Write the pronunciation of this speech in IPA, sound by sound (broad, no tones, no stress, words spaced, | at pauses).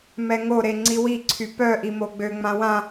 mɛŋoɾe ŋ͡ǀiwiǀʰy pœʔi moɡ͡bøŋ͡mã wã